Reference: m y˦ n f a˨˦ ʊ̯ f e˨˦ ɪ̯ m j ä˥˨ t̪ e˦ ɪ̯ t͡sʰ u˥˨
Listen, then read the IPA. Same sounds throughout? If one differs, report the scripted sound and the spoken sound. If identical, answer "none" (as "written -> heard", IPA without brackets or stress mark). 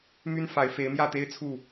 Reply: ʊ̯ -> ɪ̯